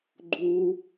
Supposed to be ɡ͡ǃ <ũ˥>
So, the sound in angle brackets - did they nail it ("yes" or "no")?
no